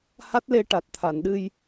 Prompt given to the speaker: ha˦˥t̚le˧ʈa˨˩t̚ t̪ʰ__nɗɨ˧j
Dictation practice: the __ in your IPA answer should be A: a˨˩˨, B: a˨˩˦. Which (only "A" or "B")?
A